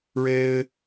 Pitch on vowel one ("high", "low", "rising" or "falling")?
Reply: high